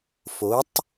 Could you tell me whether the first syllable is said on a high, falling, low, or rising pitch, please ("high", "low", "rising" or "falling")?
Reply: rising